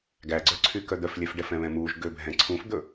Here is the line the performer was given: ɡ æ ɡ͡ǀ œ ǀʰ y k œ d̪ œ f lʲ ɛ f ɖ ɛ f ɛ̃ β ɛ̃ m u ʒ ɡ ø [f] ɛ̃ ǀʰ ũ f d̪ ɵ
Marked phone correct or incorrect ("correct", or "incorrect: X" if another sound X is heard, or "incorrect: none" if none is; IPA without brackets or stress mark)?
incorrect: bʱ